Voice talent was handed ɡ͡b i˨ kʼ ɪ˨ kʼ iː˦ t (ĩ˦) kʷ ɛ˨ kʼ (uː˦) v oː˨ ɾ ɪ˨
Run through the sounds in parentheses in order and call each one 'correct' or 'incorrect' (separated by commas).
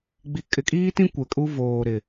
correct, incorrect